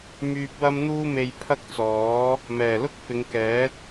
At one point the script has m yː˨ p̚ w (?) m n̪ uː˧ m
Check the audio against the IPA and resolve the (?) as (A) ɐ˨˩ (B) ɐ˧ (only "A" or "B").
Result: B